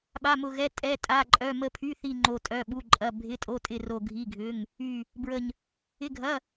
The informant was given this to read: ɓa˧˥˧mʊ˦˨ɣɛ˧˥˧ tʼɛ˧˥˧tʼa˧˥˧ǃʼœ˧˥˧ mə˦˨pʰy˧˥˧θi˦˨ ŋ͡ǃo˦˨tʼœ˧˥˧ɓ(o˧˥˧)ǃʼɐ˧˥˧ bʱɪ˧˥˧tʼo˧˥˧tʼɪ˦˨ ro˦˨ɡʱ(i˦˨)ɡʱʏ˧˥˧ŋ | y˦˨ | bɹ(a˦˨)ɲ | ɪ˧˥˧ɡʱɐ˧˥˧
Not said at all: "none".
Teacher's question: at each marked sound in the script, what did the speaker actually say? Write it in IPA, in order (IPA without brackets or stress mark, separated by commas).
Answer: u˧˥˧, i˧˥˧, ə˦˨